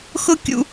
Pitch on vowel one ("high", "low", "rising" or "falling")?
high